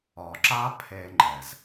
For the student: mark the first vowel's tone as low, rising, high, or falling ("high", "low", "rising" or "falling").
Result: low